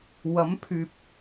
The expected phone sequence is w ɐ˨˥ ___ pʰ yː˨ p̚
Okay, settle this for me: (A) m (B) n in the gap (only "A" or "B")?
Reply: A